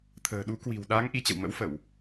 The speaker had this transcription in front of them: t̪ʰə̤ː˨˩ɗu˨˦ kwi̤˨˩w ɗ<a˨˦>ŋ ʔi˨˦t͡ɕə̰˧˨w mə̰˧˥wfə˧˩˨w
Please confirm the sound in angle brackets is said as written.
yes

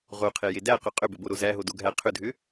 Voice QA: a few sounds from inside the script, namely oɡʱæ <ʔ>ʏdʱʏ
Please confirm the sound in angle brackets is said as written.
no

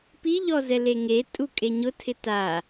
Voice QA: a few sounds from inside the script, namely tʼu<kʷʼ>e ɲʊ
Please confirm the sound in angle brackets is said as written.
no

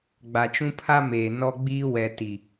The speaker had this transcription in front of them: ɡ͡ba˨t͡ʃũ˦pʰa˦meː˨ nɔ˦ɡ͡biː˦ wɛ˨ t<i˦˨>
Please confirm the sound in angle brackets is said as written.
no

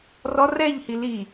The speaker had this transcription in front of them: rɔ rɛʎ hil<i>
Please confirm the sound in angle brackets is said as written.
yes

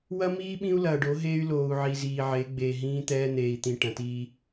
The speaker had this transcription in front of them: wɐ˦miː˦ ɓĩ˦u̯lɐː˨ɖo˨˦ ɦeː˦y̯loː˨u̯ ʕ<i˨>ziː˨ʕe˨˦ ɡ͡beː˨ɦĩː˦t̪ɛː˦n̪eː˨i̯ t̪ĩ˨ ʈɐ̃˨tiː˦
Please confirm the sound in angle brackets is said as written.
yes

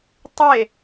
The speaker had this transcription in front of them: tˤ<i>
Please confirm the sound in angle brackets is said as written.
no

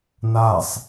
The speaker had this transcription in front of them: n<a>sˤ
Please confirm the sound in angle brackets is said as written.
yes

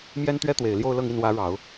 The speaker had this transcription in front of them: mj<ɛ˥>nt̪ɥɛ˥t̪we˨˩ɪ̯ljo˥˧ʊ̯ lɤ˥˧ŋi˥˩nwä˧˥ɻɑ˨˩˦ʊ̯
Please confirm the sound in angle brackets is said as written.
yes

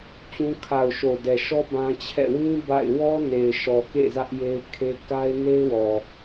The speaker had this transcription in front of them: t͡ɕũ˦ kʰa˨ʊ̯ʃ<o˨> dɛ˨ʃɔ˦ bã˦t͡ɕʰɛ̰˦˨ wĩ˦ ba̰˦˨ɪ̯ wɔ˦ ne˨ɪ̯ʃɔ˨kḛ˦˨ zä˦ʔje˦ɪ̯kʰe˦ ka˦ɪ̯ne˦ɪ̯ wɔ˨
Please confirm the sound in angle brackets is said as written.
yes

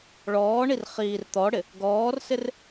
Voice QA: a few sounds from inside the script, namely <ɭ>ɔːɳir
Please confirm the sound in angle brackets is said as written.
yes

